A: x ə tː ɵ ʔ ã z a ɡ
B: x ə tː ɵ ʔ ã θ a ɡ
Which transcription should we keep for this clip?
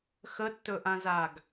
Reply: A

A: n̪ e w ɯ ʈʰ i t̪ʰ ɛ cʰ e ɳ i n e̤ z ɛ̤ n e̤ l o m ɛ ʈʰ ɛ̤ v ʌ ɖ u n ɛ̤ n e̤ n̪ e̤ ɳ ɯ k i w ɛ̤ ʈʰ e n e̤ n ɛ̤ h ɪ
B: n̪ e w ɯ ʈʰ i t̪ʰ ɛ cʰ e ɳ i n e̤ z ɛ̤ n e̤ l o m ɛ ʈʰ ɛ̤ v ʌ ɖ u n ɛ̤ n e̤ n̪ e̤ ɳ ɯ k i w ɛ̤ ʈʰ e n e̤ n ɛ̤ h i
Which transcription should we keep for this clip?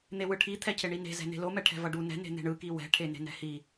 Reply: B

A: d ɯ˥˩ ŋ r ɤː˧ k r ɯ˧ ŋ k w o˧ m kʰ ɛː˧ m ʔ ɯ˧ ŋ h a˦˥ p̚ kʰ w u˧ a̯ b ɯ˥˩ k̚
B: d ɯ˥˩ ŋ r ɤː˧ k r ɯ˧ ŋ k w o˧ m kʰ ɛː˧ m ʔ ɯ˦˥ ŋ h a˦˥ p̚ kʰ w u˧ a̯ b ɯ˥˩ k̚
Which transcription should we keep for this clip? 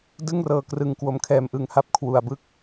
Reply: A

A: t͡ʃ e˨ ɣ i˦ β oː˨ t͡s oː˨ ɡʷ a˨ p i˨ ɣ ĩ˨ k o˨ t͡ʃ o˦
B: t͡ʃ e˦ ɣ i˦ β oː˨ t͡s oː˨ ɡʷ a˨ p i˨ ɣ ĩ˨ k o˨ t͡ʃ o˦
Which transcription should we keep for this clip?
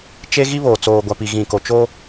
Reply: B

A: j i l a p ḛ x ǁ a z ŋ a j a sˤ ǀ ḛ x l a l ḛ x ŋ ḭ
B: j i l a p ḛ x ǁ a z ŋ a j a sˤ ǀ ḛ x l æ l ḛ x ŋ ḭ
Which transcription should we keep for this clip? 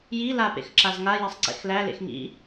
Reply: B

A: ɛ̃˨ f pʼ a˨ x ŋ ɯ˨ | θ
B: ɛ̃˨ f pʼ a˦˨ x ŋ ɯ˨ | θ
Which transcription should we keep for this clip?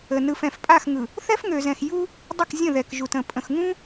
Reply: B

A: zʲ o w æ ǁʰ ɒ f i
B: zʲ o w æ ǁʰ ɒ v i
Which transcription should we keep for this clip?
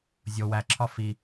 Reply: A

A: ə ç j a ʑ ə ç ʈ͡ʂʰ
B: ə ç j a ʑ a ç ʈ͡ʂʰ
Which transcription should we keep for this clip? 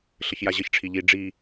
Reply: A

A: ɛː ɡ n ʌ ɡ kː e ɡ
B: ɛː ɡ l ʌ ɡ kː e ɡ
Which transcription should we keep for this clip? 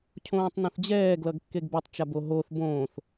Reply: B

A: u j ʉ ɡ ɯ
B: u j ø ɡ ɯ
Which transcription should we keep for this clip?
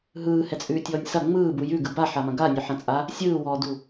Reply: A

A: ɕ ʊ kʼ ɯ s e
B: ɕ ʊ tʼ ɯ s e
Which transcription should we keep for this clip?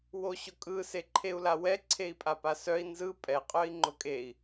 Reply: A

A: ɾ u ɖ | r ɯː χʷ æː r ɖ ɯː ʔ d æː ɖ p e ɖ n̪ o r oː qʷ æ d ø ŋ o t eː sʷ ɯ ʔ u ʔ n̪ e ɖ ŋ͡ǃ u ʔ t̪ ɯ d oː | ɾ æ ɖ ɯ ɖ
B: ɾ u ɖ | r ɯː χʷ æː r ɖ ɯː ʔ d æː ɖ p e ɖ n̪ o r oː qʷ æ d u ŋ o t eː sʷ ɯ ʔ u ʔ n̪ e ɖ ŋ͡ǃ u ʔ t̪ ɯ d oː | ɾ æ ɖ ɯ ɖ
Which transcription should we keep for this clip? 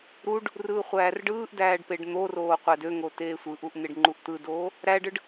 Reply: A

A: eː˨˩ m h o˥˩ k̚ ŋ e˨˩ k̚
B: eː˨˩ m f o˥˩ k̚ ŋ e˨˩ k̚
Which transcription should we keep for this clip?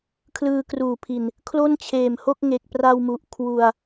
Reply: A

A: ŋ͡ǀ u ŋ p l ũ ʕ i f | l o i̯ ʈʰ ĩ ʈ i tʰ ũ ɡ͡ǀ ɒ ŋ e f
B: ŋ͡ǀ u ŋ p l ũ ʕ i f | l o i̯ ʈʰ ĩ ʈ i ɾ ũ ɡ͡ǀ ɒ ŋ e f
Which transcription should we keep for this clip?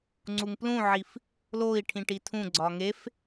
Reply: A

